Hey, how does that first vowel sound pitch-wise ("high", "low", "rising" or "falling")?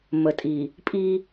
low